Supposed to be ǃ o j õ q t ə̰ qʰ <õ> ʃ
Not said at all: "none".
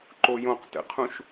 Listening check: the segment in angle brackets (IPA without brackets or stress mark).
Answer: ũ